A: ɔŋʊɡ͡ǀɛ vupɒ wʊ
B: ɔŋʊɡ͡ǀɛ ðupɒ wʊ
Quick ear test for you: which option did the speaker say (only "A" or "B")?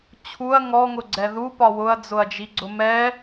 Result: B